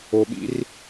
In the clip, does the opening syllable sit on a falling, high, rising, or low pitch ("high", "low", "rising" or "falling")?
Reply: low